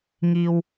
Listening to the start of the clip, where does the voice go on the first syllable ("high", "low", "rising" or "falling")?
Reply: low